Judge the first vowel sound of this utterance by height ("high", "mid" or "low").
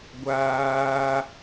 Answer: low